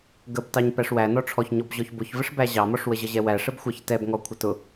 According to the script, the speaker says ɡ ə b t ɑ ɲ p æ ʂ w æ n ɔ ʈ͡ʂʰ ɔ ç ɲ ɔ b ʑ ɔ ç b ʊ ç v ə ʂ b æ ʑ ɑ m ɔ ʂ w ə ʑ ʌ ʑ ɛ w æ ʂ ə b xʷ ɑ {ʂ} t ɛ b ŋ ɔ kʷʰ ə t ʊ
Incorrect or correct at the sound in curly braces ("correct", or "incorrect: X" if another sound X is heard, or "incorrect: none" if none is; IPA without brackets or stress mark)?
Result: incorrect: ç